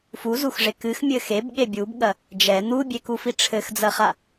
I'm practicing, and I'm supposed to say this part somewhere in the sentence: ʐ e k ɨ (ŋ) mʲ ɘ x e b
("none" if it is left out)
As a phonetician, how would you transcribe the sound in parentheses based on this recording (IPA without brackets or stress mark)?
x